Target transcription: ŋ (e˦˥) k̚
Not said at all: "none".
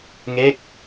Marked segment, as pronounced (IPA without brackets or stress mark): e˥˩